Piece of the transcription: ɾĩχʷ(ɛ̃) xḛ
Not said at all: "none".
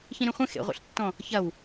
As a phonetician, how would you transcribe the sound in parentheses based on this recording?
ɛ̃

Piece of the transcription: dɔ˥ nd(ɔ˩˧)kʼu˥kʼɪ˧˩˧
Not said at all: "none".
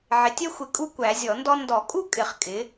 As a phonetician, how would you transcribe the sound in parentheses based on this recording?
ɔ˧˩˧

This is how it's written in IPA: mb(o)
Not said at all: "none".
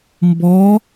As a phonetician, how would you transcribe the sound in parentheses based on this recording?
ɔ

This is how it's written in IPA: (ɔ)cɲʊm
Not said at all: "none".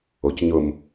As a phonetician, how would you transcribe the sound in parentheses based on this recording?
o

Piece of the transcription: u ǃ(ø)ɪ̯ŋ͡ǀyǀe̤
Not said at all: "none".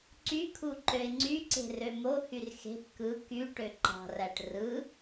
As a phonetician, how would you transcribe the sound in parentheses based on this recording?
ø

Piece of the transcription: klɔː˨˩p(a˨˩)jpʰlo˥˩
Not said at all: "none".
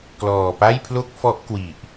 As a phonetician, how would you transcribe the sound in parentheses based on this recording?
a˥˩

